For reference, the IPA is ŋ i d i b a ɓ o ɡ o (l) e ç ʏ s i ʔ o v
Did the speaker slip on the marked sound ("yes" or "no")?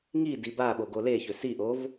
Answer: no